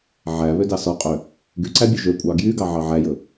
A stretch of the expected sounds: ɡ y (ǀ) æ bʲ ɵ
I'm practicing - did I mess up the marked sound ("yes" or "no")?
no